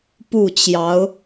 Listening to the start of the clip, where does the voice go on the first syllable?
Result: falling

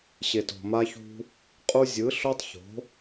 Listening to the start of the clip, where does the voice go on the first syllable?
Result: low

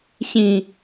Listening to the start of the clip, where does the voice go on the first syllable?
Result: high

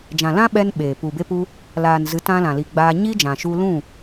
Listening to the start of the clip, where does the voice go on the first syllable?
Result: low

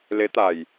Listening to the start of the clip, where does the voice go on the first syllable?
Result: rising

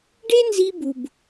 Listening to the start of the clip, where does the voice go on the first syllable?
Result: high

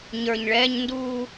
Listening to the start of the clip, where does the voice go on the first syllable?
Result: low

